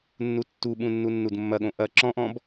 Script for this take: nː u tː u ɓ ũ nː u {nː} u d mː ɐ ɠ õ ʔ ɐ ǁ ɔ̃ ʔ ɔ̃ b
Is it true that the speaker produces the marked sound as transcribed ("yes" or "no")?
yes